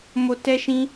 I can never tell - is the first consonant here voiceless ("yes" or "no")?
no